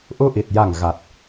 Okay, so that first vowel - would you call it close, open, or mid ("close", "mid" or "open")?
close